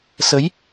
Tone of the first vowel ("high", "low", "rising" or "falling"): rising